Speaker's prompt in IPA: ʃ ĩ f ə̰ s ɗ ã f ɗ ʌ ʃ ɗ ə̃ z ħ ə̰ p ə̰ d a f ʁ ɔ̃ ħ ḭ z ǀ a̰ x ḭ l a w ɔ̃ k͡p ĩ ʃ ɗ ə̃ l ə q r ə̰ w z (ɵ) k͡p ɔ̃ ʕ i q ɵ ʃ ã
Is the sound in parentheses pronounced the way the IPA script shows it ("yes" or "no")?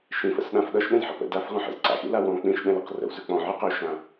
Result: yes